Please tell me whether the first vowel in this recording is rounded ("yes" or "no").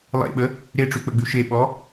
no